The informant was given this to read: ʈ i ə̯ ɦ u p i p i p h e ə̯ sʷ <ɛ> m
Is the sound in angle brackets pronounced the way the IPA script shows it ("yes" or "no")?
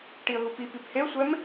yes